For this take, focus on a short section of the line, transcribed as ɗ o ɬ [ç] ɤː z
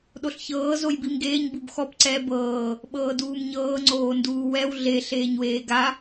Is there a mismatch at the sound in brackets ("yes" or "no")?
no